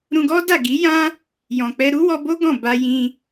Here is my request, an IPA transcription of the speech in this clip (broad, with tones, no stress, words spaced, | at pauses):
ɾũ˧ɡɔ˦da˦˨ ɡi˨˦jã˦ | jɔ̃˨k͡pɛ˧ ɾu˦wɔ˧bo˦ ɡɔ̃˦˨ ba˧jĩ˧